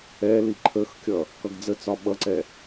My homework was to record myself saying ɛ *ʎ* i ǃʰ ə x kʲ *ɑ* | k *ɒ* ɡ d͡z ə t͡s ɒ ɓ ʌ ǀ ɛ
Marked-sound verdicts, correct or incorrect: incorrect: l, incorrect: ʌ, incorrect: ʌ

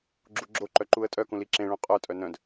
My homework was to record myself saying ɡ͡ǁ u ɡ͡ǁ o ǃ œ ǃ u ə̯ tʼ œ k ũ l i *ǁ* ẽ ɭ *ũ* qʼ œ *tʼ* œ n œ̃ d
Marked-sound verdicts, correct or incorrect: correct, correct, correct

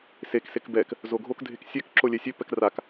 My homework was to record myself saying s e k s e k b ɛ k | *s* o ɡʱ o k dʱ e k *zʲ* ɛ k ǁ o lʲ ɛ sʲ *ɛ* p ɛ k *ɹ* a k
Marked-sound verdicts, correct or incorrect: incorrect: z, incorrect: sʲ, incorrect: ø, incorrect: r

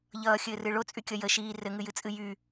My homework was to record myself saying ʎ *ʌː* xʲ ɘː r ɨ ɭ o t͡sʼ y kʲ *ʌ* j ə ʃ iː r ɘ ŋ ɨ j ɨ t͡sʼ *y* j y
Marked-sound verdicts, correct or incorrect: correct, correct, incorrect: ɨ

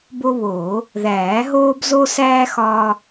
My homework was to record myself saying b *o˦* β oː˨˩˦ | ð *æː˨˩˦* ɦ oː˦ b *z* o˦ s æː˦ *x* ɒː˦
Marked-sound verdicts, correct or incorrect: correct, correct, correct, correct

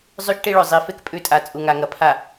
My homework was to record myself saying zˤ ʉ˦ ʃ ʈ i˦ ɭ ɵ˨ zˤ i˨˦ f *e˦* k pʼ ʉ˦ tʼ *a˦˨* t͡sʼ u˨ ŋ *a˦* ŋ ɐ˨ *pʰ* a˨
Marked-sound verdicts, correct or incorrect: correct, incorrect: a˨, incorrect: a˨, correct

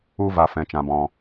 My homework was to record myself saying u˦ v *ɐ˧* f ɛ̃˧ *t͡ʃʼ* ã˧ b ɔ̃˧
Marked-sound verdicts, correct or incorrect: incorrect: a˧, incorrect: t͡ʃ

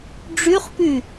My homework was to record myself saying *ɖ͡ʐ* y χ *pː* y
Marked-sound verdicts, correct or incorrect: correct, incorrect: p

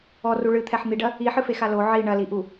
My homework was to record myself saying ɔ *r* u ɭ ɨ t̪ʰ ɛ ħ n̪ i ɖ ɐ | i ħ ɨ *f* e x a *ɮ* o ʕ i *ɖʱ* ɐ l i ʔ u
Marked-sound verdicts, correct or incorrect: correct, correct, incorrect: l, incorrect: ɳ

